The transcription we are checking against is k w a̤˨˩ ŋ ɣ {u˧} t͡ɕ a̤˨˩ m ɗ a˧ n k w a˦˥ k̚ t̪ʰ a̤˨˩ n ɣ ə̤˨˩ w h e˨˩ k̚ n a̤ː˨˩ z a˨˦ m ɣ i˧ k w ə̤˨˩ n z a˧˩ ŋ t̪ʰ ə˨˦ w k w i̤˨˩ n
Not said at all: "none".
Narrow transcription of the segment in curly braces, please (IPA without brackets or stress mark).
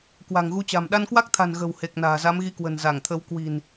u˧